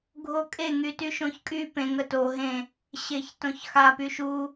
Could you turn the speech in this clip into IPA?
ɡʱokʼe ŋytyʃõçkʼy pẽ ŋəto ɦẽ | ɕeçtõçxa pyʃu

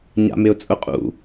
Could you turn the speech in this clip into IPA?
ɲa̰mɪʊ̯t͡sʼʊqʼṵ

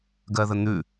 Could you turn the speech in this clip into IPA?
ɡɜðən̪ʉ

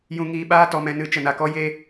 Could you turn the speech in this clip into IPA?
jũ˧ŋiː˧ɓaː˦ tɔ˧mɛ̃˧nɨ˧ t͡ʃə˨na˨ kɔ˦je˦

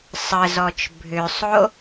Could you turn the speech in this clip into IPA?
sˤəzɔt͡ʃ bʱʏsˤo

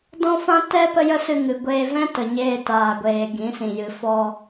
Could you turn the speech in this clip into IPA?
dɔ̃˦fã˦ tɛ˦ pə˦jə˦sɨ˧ŋɨ˨ ɡʷeː˧vɛ̃˦ tə˨ɲeː˧taː˨ɡʷeː˨ ɡĩ˨˦sĩ˨jɨ˨ fɔ˧

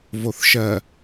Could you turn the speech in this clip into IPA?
voθʃɜ

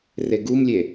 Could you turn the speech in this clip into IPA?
reɡumlʲe

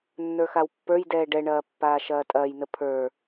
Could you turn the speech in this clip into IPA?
nːə˞xawpːə˞jdɛː ɖɛɳɐː pːaːʃɐːtʼɐːjnə pʰə˞

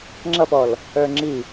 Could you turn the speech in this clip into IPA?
ŋ͡ǁʌfɔl | ə˞ŋ͡ǁi

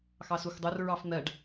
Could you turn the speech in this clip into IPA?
xɑsuxdˤor ɹɑfn̪ɜɖ

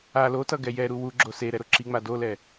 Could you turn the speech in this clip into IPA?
a lotʌ ɡɛjɛɾu wuɡ͡ǁo seɾɛ ɾoǁiŋ͡ma dolɛ

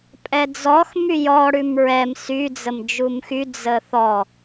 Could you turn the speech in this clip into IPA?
pʼɛd͡zɔx myjɔ ɽʉmɹɛm sy d͡zəmd͡ʒumxy d͡zəθɔ

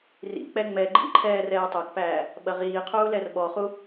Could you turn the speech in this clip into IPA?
rḭk͡pɛ ŋ͡mɛ ɡ͡ǃḭǃʰɛː rɛːtˤokpæː | ɓɐʁiːqʰuː lɛrɓɔχu

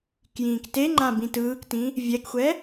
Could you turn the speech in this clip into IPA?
kjĩːkteŋ͡ǃã bĩtɯːktĩ | vʲɛkxʷɛ

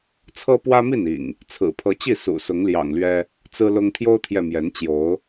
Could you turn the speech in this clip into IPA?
t͡sʰɤ˦pwä˦mi˥˨nḭ˨˩ŋ | t͡sʰɹ̩˨˩pʰɤ˨˦t͡ɕi˥˨ sṵ˨˩sʊ˨˦ŋljɑ̰˨˩ŋlɥɛ˦ | t͡sɹ̩˦lʊ˦ŋ t̪ʰjo˦ʊ̯t̪ʰjɛ˨ mjɛ˨˦nt͡ɕjo˨˦ʊ̯

